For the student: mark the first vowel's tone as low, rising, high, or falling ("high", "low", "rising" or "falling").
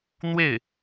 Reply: falling